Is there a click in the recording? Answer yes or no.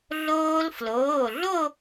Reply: no